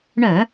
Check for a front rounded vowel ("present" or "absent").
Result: present